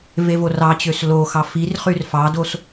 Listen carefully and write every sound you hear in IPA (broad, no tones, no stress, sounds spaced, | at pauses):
v e v o r ɑ t͡ɕ ø s l o x ɑ f i r χ y r f ɑ d o s